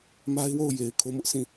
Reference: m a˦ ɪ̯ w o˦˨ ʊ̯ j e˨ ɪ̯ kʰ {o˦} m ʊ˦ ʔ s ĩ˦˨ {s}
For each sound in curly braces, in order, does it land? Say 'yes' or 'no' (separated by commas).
yes, no